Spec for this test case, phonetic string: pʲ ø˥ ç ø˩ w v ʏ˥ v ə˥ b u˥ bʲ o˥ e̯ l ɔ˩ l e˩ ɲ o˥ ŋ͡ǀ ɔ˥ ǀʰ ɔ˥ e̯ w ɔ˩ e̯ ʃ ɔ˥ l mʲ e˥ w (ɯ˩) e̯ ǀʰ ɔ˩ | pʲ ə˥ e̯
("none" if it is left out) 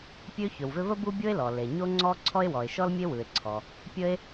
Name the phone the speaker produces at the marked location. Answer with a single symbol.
ɯ˩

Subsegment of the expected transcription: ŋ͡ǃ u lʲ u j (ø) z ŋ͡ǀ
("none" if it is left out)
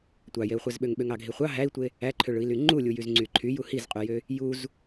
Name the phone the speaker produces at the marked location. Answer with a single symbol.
y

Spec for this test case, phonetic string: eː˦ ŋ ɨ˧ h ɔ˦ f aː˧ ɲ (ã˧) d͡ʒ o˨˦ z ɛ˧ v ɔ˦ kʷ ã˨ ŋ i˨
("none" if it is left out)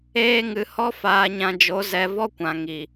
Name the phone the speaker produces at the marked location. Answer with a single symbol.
ã˧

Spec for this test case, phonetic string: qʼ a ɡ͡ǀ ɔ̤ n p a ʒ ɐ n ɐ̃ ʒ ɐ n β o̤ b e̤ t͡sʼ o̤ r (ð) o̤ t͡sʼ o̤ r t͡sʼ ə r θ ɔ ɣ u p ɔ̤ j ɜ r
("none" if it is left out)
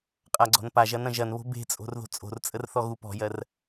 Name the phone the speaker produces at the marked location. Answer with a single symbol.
ð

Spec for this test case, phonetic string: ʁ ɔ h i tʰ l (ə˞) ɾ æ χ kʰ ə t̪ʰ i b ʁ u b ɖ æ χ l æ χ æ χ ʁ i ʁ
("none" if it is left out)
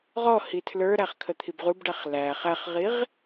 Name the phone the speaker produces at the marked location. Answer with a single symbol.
ə˞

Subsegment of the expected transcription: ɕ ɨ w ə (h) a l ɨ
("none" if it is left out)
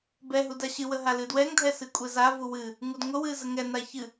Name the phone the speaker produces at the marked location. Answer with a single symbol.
ɦ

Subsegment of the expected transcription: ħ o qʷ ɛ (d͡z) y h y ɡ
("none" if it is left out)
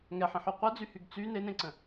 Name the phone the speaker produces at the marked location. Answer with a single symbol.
d͡z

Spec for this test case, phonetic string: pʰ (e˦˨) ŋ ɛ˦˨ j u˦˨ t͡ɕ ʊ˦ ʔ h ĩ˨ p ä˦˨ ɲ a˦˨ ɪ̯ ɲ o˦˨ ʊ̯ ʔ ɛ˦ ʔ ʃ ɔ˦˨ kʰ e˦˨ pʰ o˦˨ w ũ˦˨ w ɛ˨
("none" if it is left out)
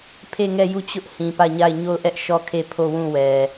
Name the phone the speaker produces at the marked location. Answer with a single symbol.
e˦˨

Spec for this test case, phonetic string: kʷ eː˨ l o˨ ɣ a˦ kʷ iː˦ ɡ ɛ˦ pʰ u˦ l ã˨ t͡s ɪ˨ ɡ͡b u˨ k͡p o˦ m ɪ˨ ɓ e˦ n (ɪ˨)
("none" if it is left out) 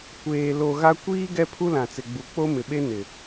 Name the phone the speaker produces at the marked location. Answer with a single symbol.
ɪ˨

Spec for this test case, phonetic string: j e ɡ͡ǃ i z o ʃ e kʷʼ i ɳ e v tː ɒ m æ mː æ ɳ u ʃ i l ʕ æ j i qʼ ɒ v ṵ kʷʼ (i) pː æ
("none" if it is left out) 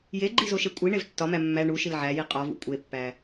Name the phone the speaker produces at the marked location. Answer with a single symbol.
e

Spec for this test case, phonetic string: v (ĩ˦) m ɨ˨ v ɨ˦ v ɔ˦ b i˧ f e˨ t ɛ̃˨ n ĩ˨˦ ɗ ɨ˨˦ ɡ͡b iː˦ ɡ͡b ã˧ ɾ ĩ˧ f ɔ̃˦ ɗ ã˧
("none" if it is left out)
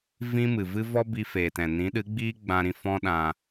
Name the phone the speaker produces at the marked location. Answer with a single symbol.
ĩ˦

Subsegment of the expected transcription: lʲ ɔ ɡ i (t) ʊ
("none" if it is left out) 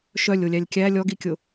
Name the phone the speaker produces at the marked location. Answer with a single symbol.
kʲ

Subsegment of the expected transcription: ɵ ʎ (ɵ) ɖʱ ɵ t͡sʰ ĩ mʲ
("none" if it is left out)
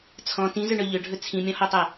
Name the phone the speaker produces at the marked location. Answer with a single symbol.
ɵ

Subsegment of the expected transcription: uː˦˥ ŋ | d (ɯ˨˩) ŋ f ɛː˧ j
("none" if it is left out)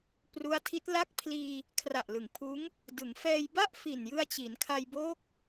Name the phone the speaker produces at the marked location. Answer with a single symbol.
ɯ˩˦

